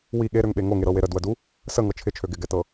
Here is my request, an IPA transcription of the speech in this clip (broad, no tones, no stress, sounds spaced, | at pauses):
w i ɠ e ɾ ø ŋ ɓ e ŋ o ŋ e ɾ ɤ w e ɾ ə d w ə d u | s ə ŋ ɤ t͡ʃʰ ɪ t͡ʃʰ ø ɡ ɪ ɡ ɛ t ɤ